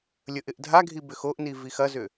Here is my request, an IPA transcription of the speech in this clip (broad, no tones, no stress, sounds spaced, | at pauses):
lʲ ə ʔ ɪ ʔ dʱ a ɡʱ i b ʏ x o ʔ n i v i x ɐ z ʏ